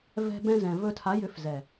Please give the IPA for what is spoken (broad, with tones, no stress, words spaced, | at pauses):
vɛ̤˧ bɛ̃˧zɛ̃˨ vɵ˧tʰa˨˦ jʏ˨˦fzɛ˨